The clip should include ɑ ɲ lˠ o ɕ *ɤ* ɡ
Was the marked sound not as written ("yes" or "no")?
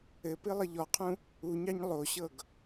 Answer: no